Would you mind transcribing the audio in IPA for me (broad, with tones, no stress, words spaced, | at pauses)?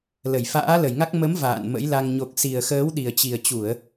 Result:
lə˧˩jfa̰ː˧˥lə˧˩jŋa˦˥k̚ mə˨˦m va̰ː˧˨nmə̰˧˥jla˧ŋ ɲo˨˩k̚si˨˩ə̯ xəː˨˦wɗi˨˩ə̯t͡ɕi˨˩ə̯t͡ɕu˧˩˨ə̯